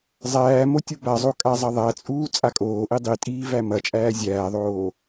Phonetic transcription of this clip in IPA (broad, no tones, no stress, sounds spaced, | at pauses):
zˤ æː m o tʲ u b a zˤ o kʼ a zˤ ɐ ðˤ æ t͡sʼ uː t͡sʼ a kʼ oː ʔ i dˤ i tʼ iː v æ m ɐ t͡ʃʼ æː zʲ æː ðˤ oː